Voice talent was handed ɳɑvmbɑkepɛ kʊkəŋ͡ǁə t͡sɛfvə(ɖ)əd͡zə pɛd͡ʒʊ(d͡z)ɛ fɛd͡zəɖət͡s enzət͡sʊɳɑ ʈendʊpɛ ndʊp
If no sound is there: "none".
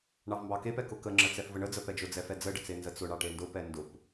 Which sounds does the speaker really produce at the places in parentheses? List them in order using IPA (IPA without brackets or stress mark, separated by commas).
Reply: ɳ, d͡z